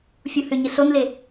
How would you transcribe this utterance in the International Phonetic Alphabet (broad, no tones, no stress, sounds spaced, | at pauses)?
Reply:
fʲ u h ʏ ɲ ɘ ɬ o n l e